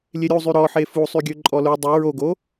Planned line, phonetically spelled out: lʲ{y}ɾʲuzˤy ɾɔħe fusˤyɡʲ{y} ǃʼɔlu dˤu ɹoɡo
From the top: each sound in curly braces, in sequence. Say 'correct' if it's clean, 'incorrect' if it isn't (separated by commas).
incorrect, incorrect